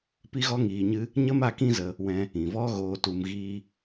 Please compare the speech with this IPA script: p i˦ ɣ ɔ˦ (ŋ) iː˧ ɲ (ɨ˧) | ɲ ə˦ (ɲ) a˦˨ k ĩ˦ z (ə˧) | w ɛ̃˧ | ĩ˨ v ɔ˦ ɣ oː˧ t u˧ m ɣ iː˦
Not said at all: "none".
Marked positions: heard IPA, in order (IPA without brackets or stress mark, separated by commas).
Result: ŋ, ɨ˦, m, ə˧